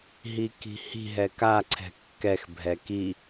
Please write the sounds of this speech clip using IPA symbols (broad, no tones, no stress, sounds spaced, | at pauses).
ɦ i k i̤ h i̤ ɦ ɛ k a ǀʰ ɛ̤ kː ɛ x bʱ ɛ k i